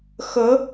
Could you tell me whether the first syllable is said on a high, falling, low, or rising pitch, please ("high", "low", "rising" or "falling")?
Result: rising